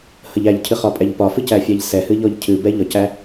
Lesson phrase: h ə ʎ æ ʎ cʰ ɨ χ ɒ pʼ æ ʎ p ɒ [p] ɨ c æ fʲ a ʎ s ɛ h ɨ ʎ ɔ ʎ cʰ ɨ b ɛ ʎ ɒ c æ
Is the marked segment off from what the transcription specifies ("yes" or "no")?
yes